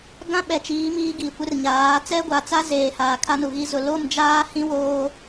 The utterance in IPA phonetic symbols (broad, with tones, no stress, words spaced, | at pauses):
ɡã˦ɓɛ˨t͡ʃiː˨˦ miː˦ɡiː˨ kʷɪ˦rɲaː˨˦ t͡sɛ˦ɡʷa˨t͡sa˦ zeː˨ haː˨kʰa˦nu˨ɣi˦ zʊ˨ lo˦˨md͡ʒaː˦hĩ˦ woː˦